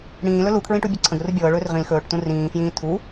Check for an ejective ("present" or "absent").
absent